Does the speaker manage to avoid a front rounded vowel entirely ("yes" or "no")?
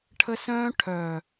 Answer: no